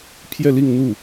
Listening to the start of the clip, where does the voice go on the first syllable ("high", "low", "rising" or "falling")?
falling